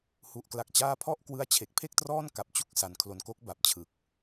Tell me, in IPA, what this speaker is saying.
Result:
hu˨˩ʔkla˨˩k̚t͡ɕaː˦˥pʰɔ˥˩ʔ kwɯ˦˥a̯t͡ɕʰe˨˩k̚pʰe˥˩k̚trɔː˥˩n ka˨˩p̚ t͡ɕu˥˩k̚ sa˩˦nkʰlo˨˩nko˦˥k̚ba˨˩p̚ t͡ɕʰɯ˨˩k̚

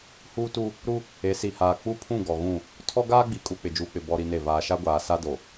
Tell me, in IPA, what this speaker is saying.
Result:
huː˦tu˦ | ɾu˦ | e˨˦si˨haː˨ k͡pu˦pʰũ˦˨ ɡɔ˨ɣũ˦˨ | tʰɔ˦ɡaː˦ɡ͡bi˨kʼu˨ k͡pɪ˨d͡ʒuː˨k͡pɪ˨ bɔ˦ɾi˦ne˦˨ vaː˨ʃa˦ɡʷaː˨sa˦ do˨

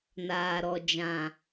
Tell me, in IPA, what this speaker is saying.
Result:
naː˨ɾɔ˨ d͡ʒã˨

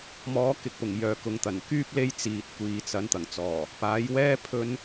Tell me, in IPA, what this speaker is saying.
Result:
mɔː˨˥ kɪ˧k̚pʊ˨˩ŋ jœː˨˥kʊ˨˧ŋt̪ɐ˨˩n kyː˥p̚ le˥j t͡siː˨t̚kʷiː˨t͡sɐ˨˥n t̪ɐ˨˩ŋt͡sɔː˨˩ | paː˨˥jwɛː˥ pʰɵ˥n

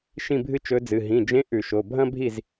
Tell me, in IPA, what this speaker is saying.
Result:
ʃĩ˥˨bʱɨ˥t͡ʃɵ˧˥d͡zɨ˩˧˩ ɦĩ˩˧˩d͡ʒẽ˧˥ ʔʉ˧˩˧ʃo˩˧˩ bʱɐ̃˥bʱi˥˨z

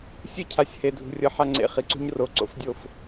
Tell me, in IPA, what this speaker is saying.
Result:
sʲɯ˦cʰa˨sʲhe˨ dʱṳ˨rʲɤ˨ ħa˦ŋ͡ǀḛ˨ χi˨ǀṳ˦ɲ ro˨˦ǀo̰˨˦fdʲo˦˨f

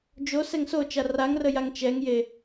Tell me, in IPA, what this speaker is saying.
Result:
d͡ʒosɛŋ sot͡ʃa raŋrəjaŋ t͡ʃɛŋje

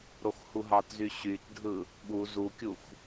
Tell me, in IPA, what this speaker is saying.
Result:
ɾoxhuɦɑtzy ɕytdʱɯ | ɓu zukʲux

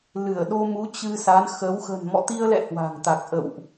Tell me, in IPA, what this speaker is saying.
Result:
lɨ˧˩ə̯ɗo˧mu˨˦ t͡ɕɨ˧sa˨˦nxə˨˦w xə̤˨˩nmɔ̰˧˨t̪i˧ə̯lɛ̰˧˨ hwa̤˨˩ŋt̪a˨˩k̚ʔə̰˧˨wʔ

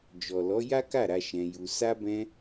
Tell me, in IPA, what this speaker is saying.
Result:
d͡ʒɔ˨lɔ˨˦ ja˦ka˦˨ɾa˧ ʃɛ̃˧ju˧ sa˧bɛ̃˧

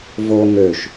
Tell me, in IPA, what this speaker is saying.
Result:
vo ŋøʃ

